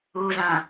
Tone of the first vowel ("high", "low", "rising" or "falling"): low